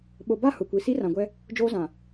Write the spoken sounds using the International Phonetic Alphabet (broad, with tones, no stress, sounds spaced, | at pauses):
ɓ o˨ b a˦˨ h ʊ˨ kʷ i˨ s i˦ r ã˨ ɡʷ ɛ˦ | d͡ʒ oː˦ z ã˨